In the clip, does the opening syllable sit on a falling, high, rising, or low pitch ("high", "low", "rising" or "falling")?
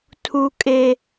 high